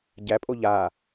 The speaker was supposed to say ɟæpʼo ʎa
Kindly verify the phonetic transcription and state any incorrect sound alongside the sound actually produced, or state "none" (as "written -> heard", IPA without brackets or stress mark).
none